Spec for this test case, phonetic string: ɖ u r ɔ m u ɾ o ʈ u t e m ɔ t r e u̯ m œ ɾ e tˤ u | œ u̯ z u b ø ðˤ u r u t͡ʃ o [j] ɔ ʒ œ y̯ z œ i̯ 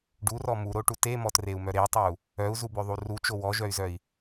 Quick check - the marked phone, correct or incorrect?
incorrect